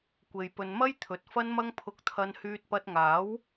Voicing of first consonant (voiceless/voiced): voiceless